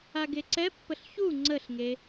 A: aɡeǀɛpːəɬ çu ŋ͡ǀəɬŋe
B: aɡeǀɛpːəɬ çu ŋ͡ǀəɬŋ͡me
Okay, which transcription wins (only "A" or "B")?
A